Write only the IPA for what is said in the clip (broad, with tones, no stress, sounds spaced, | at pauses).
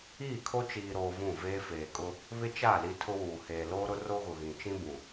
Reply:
iː˦˨ kʰ o˦ t͡ʃ iː˨ ɾ oː˨ v ũ˦˨ v eː˦ f eː˨ kʼ ʊ˦ | β ɪ˦ t͡ʃ a˦˨ l i˦ tʰ ʊ˦ w uː˨ h eː˨ l oː˦ ɾ ʊ˦ r o˦ ɣ ʊ˨ ɣ ĩ˨ t͡ʃ ĩ˦ b ũ˨